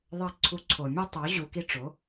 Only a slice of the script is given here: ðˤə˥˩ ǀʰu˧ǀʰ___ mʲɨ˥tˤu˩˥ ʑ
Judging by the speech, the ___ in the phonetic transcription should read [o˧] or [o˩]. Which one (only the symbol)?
o˩